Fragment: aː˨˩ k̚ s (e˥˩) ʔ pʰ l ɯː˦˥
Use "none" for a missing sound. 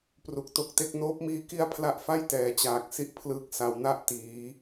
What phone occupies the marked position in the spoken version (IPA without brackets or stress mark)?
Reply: i˥˩